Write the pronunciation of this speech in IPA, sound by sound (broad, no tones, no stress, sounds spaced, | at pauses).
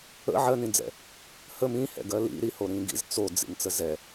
ə̰ ʕ ɜ n ĩ d͡z ɛ̰ | h ə m ĩ h ɛ̰ ɡ ɜ l ḭ ɾ i h o ɾ ĩ ɡ ḭ z t͡s o d͡z ḭ n t͡s ə z ɛ